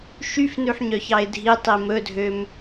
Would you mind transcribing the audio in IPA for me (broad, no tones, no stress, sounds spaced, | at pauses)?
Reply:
ʃ y f n ʉ ħ ɲ œ ç ɑ ɪ̯ dʱ i tˤ i m ɵ dʱ ø m